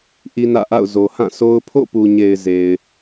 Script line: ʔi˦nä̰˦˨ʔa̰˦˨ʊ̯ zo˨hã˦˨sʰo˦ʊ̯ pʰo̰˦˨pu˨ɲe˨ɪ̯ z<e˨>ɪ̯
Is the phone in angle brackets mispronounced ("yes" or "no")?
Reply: no